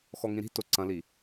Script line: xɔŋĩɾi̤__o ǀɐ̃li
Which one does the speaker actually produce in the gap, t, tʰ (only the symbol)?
t